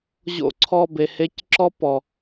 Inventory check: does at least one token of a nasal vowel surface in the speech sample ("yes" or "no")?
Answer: no